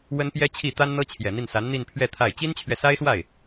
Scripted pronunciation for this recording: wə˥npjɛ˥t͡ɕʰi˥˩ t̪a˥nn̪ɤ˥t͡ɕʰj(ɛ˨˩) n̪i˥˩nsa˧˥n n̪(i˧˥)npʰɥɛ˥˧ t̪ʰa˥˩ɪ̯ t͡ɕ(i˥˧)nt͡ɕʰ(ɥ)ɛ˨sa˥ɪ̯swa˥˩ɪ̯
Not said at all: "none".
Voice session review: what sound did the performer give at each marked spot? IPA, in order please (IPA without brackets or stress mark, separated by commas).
ɛ˨˩, i˥˧, i˥, ɥ